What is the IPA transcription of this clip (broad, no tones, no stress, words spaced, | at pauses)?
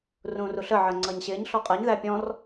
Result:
rũːruɬə ʕɜŋ͡ǀʌːɲɕɪːɲ ɬɔqʼɜɲ ðæpʲɔ̃r